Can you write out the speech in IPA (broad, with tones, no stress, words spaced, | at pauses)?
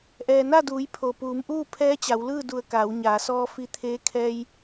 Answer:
ʔɛː˩na˥˨duː˩˧j pʰo˩puː˩˧mʔuː˥˨ pʰɛː˧˥t͡ɕa˩˧wlɯː˥˨du˧˩ə̯ kaː˩˧wɲaː˩˧sɔː˧ fi˧t̪ʰeː˧˥ kʰɛː˧j